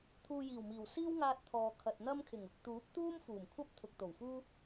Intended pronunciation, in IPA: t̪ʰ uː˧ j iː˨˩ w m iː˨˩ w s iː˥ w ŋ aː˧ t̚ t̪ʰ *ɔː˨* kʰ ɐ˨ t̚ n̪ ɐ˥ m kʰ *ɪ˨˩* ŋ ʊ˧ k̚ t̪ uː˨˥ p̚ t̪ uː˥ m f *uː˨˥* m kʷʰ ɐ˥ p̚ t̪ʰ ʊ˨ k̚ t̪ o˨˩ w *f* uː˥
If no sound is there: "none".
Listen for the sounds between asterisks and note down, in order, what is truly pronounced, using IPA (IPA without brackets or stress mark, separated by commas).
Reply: ɔː˨, ɪ˨˩, uː˨˩, f